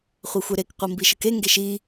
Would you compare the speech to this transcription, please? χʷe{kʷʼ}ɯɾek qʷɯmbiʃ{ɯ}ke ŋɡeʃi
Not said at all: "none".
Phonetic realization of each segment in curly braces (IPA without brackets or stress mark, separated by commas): xʷ, ɯ